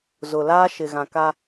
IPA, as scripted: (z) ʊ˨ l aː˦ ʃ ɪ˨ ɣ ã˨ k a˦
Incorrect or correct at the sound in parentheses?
correct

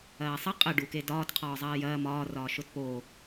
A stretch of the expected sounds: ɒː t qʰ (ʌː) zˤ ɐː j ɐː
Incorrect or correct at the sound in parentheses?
incorrect: ɒː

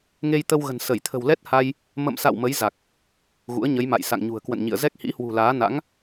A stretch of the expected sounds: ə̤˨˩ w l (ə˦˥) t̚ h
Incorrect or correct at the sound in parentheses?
incorrect: ɛ˦˥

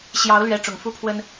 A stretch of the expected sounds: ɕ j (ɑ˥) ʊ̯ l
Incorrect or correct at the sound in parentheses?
incorrect: ɑ˧˥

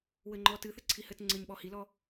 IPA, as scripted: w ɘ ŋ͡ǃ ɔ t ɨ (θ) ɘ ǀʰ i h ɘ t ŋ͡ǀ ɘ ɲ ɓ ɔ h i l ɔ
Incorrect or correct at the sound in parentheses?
correct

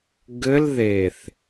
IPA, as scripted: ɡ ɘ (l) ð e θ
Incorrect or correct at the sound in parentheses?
correct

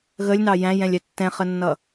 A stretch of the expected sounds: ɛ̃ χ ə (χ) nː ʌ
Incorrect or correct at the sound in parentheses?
incorrect: none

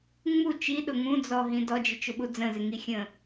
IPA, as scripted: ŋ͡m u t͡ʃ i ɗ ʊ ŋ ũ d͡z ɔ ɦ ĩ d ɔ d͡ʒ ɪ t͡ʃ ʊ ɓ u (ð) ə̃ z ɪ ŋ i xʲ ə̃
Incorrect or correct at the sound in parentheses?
incorrect: d͡z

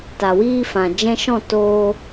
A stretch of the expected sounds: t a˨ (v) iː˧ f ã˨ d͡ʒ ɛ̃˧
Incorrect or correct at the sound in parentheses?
incorrect: w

